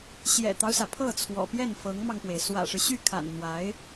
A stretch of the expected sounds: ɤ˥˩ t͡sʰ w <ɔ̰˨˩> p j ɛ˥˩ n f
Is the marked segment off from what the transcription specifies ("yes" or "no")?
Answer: no